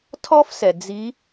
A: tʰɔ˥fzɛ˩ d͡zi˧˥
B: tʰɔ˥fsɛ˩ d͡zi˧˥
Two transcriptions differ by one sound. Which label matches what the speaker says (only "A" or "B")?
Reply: B